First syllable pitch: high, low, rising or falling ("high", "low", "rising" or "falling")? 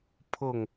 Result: falling